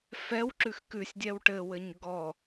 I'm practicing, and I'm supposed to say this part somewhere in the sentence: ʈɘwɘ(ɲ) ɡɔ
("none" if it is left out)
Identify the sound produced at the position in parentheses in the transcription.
ɲ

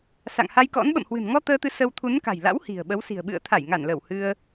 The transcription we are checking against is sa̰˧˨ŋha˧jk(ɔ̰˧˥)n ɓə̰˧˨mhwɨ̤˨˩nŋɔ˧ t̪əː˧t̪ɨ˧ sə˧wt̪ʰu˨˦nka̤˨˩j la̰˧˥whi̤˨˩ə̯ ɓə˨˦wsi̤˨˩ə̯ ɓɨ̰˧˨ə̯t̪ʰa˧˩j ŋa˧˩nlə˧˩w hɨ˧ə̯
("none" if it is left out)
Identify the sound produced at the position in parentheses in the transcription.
ɔ̰˧˥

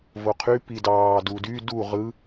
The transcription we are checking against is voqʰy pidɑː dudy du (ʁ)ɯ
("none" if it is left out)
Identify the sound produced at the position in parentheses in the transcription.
ʁ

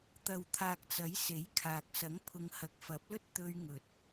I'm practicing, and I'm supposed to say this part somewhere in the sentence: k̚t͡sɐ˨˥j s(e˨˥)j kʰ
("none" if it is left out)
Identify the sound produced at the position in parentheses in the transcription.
e˨˥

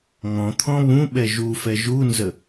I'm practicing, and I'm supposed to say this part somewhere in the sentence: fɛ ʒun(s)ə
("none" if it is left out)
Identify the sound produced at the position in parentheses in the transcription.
z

